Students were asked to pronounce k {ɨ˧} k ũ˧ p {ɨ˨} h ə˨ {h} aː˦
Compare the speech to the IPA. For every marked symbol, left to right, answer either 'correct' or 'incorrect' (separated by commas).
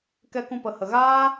incorrect, incorrect, incorrect